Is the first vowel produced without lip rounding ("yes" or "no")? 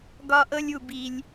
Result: no